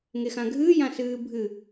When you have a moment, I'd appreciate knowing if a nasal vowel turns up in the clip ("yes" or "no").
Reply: yes